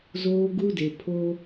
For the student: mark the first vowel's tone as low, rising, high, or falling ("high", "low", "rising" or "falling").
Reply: high